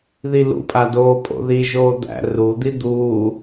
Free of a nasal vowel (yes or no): yes